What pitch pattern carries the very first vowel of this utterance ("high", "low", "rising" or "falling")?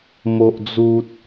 high